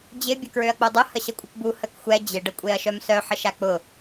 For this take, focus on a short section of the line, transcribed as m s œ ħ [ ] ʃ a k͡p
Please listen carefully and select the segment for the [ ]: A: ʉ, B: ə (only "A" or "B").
B